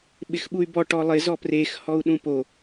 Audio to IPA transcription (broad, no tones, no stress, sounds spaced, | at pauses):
ɓ ɪ x ɓ u y̯ b ɔ ʈ ɔ lˠ ɪ z ɔ p r e x h ɔ u̯ ɗ ũ p o